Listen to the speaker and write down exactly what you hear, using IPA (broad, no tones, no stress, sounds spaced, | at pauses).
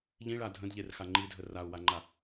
ʎ ĩ ɭ a dʱ ə̃ d ʎ e r x a ŋ͡ǃ i dʱ ə r a u̯ w a ŋ͡ǃ a